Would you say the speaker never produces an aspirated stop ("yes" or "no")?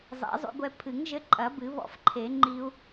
no